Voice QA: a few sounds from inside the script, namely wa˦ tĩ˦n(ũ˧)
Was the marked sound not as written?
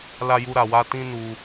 yes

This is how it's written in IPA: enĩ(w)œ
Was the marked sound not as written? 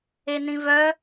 yes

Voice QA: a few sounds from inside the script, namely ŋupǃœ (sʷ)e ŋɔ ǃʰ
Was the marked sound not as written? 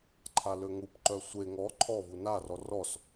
no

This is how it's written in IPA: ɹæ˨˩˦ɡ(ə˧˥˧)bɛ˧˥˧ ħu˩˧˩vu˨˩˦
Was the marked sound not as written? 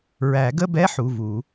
no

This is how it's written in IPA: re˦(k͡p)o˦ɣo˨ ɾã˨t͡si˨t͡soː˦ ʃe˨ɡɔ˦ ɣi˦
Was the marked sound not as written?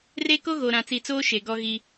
yes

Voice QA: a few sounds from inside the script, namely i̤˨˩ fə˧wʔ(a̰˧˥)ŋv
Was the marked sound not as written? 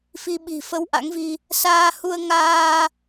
no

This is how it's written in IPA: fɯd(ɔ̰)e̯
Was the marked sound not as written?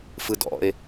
no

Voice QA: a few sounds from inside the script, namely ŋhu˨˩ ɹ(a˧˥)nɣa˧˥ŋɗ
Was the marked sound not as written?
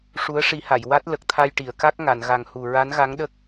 no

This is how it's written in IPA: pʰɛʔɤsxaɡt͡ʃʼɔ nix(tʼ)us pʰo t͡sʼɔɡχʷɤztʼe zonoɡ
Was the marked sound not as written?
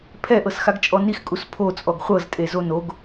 yes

